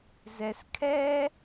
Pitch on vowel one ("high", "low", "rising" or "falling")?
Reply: low